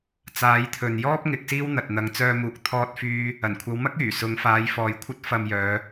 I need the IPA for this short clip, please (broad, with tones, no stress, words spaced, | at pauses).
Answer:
t͡saː˨˥jt̪ʰɵ˨n jɔː˥p̚ ŋɪ˨˥k̚siː˥w n̪ɐ˨t̚n̪ɐ˨˧ŋ t͡sœː˧muː˨k̚ t̪ʰɔː˥t̚fyː˥ | ɐ˨˩nkʷʰɐ˨˧wmɐ˥k̚ yː˨˩sʊ˨˧ŋ faː˨˧jfɔː˨jkʷʰɐ˥t̚ fɐ˧mjœː˨˧